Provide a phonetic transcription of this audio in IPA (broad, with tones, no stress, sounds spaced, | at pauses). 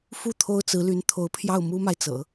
f u˥˩ t̪ʰ o˥ ʊ̯ t͡s ɹ̩˧˥ l y˧˥ n t̪ʰ o˧˥ ʊ̯ pʰ j ɑ˥˩ ʊ̯ m u˥ m a˨ ɪ̯ t͡s ɤ̰˨˩˦